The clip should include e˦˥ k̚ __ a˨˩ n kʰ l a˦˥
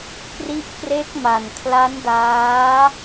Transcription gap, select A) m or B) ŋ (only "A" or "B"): A